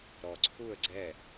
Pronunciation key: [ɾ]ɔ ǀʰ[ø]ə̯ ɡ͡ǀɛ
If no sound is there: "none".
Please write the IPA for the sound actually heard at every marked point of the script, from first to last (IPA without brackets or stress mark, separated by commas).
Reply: ɾ, u